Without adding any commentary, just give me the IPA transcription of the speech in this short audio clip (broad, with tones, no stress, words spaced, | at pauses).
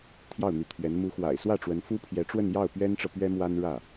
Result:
t̪ʰjɑ˥˩ʊ̯n̪y˧˥t̪ʰɥɛ˧˥n mu˧˥xwa̰˨˩ɪ̯swä˥˩ʈ͡ʂwə˧˥n fu˥pʰjɛ˧˥ʈ͡ʂwə˥˧njɑ˥˩ʊ̯ pɥɛ˥nʈ͡ʂɤ˨ pɥɛ˥mwa˥n ɻä˥˩